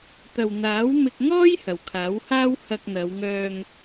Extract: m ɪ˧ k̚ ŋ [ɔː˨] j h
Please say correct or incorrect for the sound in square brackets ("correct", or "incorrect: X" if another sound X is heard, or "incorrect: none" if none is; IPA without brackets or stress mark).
incorrect: ɔː˥